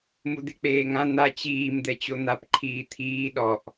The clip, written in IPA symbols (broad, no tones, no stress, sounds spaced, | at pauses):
m u d̪ e k͡p eː ŋ ã n̪ a t͡ɕ iː m d̪ ɛ t͡ɕ o n̪ a p ǃʰ iː t̪ʰ iː ɗ ɔ ʔ